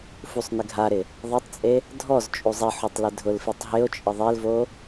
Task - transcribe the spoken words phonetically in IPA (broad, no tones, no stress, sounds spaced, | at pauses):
f u sˤ n ɪ ɡʱ a ɾ ɪ | ðˤ a tˤ t͡sʼ e | dʱ ɔ z t͡ʃʼ u zˤ i ħ o tˤ l ɪ dʱ ʊ l f i tˤ ɦ ɪ o̯ t͡ʃʼ ɪ ðˤ e l v o